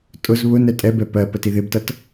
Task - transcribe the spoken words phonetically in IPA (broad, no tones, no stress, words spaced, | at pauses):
tʼʊz βʊnɛ tʼɛbɛ pɜ pətiðɪbtʌt